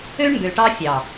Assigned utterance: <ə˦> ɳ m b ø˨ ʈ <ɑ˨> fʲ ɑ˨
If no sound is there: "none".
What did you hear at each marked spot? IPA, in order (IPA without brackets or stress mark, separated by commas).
ø˦, ɑ˦